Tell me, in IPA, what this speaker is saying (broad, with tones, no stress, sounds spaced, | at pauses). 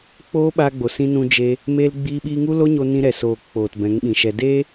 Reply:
k͡p oː˦ ɓ aː˧ ɡ͡b o˨ s ĩ˧ n ũ˧ d͡ʒ e˧ | m eː˧ l ɡ͡b iː˧ ɓ iː˧ ŋ u˦ l o˦ ɲ o˧ n ĩ˧ ɾ ɛ˨ s oː˨ k͡p oː˨ t b ɛ̃˨˦ ŋ ɓ ĩ˨ ʃ ɛ˧ d e˦